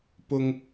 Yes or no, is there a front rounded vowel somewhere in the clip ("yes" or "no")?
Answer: no